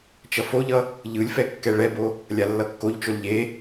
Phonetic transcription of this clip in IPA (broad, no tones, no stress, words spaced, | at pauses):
t͡ʃʌfoʎʌ | ʎɯlʲfɛ kːɛɭɛbo | lʲalːʌkːoʎt͡ʃol ʎe